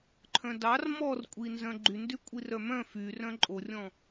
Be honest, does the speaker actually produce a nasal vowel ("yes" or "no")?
yes